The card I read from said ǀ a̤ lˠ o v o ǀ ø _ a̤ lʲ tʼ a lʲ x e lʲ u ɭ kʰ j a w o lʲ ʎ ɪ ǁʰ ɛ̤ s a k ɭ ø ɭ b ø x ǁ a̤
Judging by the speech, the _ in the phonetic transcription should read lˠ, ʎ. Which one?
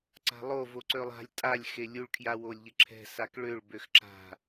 lˠ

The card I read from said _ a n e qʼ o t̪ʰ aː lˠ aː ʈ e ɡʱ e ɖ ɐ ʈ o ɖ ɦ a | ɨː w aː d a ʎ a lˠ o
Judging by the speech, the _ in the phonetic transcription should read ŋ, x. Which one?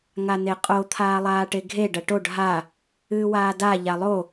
ŋ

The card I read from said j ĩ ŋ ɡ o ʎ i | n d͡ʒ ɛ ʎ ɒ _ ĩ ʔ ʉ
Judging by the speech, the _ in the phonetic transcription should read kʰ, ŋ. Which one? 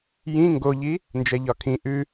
kʰ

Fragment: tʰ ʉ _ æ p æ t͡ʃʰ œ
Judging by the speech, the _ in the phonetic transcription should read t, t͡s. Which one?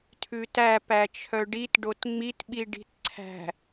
t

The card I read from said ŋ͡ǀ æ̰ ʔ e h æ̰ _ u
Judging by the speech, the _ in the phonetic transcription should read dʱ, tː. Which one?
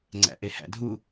dʱ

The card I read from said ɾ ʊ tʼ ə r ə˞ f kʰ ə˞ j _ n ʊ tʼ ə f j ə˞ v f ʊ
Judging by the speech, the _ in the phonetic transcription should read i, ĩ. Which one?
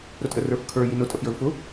i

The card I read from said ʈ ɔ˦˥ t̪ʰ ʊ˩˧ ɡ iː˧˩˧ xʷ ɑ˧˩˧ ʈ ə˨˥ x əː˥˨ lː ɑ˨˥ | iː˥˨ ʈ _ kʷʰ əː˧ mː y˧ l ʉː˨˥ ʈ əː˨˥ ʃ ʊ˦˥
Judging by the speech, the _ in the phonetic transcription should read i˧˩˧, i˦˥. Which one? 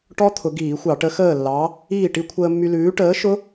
i˦˥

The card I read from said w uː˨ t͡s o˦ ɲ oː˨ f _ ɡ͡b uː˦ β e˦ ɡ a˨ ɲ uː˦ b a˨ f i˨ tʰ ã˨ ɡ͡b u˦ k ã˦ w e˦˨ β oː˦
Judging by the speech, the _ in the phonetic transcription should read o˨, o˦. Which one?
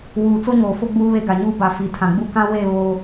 o˦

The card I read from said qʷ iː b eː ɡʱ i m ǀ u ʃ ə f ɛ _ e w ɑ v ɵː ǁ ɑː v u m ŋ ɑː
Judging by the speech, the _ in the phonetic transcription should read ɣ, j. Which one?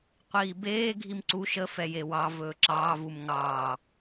j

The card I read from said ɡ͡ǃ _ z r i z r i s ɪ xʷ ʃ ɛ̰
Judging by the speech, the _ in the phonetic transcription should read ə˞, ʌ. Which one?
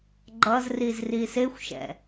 ʌ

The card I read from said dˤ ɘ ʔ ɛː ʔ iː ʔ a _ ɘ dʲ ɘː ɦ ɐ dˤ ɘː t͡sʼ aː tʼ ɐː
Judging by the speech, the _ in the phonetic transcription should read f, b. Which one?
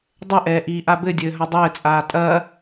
b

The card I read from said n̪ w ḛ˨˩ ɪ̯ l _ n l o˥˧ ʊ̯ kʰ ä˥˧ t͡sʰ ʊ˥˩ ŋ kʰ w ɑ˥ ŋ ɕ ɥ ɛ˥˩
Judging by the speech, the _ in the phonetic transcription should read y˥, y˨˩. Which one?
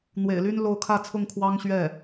y˥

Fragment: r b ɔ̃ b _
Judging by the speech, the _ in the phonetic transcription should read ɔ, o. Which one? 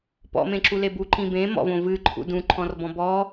ɔ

